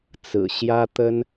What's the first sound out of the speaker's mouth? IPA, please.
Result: t͡s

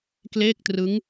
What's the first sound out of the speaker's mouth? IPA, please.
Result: k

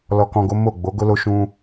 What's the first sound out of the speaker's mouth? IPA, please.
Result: l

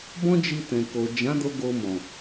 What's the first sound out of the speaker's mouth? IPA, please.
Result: b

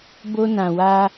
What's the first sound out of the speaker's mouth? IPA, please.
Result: b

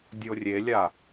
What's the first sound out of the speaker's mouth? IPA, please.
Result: dʲ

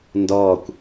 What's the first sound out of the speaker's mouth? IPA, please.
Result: n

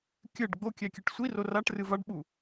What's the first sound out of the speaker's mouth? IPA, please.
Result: kʲ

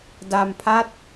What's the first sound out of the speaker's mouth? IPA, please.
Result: d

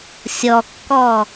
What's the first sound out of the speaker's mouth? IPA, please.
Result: sʲ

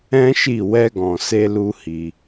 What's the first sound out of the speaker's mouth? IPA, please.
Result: ɛ̃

